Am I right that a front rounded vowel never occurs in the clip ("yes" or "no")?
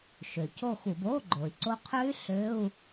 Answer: no